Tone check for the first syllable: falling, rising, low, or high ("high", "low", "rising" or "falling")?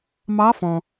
rising